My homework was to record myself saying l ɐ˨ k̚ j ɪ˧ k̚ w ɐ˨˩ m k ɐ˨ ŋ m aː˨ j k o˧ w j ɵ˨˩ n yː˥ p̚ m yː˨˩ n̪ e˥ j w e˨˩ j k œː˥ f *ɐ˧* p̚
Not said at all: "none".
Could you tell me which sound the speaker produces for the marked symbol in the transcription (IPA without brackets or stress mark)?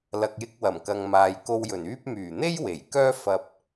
ɐ˧